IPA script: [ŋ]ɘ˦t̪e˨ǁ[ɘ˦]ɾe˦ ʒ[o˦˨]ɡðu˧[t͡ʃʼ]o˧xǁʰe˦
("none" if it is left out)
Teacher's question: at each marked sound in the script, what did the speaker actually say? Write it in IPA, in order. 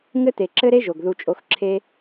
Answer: ŋ, ɘ˦, o˨, t͡ʃʼ

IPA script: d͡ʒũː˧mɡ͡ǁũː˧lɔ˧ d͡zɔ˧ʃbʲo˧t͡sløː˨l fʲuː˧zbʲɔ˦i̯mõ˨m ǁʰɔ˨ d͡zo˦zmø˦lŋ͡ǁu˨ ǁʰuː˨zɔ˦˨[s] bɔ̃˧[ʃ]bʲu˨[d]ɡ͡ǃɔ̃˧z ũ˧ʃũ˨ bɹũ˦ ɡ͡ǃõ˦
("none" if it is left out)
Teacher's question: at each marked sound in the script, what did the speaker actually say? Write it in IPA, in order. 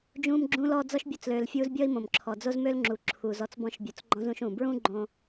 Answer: t͡s, ʃ, t͡s

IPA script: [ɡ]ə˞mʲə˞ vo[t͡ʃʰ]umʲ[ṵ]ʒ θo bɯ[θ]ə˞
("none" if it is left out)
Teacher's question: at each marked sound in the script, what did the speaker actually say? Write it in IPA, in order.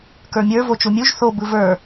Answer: k, t͡ʃ, u, v

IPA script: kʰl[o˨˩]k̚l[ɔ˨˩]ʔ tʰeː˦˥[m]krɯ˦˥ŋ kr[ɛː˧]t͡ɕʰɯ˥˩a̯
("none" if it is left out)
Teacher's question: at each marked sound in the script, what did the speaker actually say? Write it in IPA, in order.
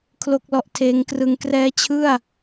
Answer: o˥˩, ɔ˥˩, ŋ, ɛː˦˥

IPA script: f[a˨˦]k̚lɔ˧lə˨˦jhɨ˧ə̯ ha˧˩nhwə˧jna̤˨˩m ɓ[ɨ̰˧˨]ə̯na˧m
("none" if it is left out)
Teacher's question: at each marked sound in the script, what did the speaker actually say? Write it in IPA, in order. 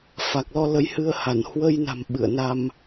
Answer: a˨˩, ɨ̰˧˨

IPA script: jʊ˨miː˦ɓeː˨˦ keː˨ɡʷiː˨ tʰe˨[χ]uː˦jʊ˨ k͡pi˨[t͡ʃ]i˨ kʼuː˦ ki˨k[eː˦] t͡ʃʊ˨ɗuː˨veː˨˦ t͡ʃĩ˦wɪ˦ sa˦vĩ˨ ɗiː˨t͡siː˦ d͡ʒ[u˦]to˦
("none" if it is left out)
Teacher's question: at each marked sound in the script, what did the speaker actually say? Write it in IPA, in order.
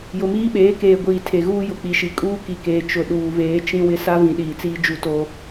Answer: ɣ, ʃ, eː˨, u˦

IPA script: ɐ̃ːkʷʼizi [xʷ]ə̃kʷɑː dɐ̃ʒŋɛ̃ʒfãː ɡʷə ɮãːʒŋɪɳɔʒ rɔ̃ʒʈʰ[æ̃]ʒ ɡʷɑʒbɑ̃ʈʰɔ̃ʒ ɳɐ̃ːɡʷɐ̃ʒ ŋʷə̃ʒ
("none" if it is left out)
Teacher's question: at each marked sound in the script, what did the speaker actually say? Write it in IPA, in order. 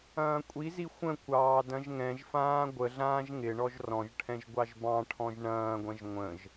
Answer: xʷ, ɛ̃

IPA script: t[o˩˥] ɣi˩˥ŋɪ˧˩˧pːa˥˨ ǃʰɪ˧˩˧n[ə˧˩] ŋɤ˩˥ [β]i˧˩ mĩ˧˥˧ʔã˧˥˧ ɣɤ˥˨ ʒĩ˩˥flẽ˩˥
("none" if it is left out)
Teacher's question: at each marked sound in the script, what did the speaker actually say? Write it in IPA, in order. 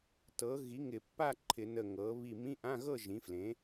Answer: ɤ˩˥, ə˧˩, β

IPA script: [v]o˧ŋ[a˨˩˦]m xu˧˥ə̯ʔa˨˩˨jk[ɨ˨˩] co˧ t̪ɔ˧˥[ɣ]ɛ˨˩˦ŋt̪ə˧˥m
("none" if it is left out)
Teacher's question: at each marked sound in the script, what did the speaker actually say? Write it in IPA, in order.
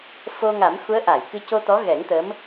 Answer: f, a˨˩˦, ɨ˧, ɣ

